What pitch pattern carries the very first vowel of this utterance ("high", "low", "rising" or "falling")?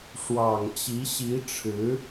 low